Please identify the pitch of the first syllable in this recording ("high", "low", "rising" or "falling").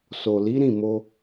low